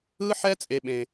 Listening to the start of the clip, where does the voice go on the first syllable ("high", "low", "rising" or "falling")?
high